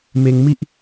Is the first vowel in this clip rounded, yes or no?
no